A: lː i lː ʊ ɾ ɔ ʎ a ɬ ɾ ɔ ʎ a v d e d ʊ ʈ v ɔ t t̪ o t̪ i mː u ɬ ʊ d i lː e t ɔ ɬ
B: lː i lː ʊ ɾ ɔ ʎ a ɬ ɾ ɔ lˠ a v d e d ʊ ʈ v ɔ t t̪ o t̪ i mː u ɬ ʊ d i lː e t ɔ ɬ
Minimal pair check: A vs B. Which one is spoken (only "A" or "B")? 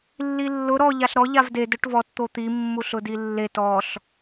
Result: A